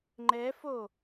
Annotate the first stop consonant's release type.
click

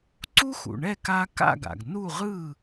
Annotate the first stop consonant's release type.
click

